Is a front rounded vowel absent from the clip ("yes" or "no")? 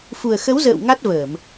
yes